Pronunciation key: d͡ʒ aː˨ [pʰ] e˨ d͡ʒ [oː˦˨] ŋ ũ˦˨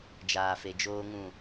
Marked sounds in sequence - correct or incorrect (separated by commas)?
incorrect, incorrect